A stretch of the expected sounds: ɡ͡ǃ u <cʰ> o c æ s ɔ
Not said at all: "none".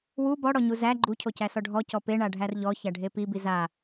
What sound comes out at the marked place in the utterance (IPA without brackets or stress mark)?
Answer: cʰ